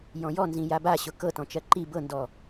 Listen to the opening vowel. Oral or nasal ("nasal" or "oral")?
nasal